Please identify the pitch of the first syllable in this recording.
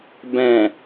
low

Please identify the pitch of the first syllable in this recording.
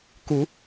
rising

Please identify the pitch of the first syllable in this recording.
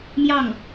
falling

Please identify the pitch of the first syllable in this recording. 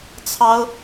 high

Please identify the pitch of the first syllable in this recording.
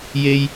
high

